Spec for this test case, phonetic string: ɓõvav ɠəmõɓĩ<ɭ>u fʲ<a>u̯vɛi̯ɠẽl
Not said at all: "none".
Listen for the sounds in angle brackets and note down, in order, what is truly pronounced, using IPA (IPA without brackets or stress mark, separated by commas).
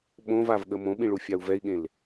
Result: ɭ, a